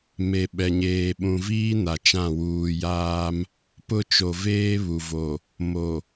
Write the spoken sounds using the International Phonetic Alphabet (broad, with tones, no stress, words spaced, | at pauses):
me˨ɓɛ˨ ɲeː˨ɓũ˨viː˦ na˨t͡ʃã˦˨ wuː˨jaː˦m | pʊ˦˨t͡ʃo˨veː˦ βu˨vo˨ | mo˨